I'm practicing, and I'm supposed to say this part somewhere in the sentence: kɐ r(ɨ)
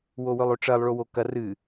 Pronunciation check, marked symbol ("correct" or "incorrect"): correct